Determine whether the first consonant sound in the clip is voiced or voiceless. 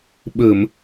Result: voiced